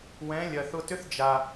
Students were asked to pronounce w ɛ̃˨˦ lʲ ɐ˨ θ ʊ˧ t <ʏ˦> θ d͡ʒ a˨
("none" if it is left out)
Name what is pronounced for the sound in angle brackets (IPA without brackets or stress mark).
ʏ˦